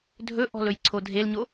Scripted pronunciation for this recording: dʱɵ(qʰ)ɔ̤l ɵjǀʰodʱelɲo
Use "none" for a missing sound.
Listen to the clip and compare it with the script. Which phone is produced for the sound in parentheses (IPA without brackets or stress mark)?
ʔ